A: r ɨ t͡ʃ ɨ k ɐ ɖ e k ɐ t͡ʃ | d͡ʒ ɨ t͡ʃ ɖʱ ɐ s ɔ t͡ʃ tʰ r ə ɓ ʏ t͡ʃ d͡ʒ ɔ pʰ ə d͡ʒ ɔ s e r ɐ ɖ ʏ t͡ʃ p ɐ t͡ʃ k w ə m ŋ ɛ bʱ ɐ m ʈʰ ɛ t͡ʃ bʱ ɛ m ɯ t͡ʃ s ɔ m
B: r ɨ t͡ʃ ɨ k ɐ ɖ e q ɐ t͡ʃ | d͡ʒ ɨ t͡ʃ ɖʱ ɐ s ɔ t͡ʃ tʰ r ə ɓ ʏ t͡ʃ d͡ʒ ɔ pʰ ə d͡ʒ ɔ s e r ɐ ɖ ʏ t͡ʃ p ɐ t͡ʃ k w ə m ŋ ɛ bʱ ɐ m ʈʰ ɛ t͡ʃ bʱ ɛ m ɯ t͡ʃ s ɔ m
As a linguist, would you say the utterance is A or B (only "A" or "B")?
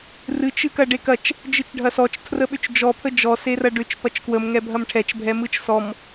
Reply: A